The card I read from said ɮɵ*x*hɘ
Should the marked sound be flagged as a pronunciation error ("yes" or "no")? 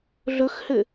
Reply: no